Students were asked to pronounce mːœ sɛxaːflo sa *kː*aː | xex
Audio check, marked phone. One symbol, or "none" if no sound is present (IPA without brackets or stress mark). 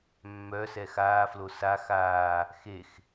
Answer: x